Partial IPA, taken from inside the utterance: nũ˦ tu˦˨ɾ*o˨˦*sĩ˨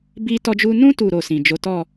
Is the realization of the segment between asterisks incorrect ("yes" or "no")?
yes